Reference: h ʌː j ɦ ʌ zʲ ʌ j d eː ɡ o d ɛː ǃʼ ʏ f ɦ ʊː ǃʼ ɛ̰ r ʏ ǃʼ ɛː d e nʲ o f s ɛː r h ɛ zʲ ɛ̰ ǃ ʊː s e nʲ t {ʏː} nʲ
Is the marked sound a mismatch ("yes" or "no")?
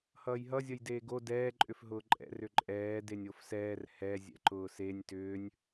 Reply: no